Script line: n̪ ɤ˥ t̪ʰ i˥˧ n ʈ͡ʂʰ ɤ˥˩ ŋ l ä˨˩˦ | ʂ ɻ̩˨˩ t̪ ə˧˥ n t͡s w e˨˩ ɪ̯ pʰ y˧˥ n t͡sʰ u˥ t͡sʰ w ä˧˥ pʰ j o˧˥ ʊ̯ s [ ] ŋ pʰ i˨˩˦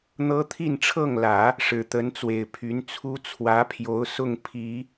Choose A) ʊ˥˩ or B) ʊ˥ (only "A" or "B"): A